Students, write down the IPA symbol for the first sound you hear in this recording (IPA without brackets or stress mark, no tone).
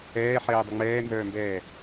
ɛː